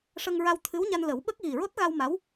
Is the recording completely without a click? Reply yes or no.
yes